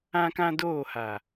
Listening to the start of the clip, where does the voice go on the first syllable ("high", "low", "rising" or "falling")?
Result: high